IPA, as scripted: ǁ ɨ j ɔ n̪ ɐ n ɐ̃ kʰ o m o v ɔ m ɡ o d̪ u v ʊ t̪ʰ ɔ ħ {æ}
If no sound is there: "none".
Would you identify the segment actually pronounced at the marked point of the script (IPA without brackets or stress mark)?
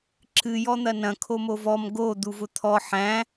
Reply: æ̃